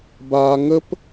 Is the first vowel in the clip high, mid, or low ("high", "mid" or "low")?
low